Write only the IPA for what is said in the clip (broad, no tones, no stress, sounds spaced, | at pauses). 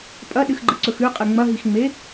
pʼ ɐ ɗ ɨ x ɡ͡ǃ ɨ ǀ ɵ x ʉ qʼ ɨ ŋ͡m ɐ ɦ i x ŋ͡m e